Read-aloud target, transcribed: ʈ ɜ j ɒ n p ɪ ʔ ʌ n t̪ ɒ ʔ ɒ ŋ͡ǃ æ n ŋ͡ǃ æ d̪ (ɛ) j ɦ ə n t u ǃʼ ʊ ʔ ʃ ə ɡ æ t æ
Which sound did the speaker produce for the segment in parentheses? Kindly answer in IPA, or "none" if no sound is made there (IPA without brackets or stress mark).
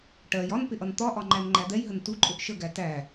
ɛ